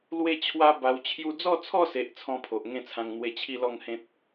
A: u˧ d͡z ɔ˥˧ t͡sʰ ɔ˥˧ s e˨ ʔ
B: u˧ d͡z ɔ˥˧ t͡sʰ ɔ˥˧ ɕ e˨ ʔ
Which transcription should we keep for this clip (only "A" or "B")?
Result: A